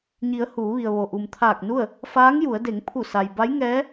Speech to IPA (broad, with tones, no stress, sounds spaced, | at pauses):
ɲ i˩˧ ə̯ h uː˩˧ ʋ i˩ ə̯ ʋ o˩ ʔ u˩ m t̪ʰ aː˧˩ k̚ n u˥˨ ə̯ | f aː˧˥ ŋ j u˩˧ ə̯ d e˩˧ ŋ pʰ u˧˩ s a˩ j b a˧˥ j ŋ ɛː˧˥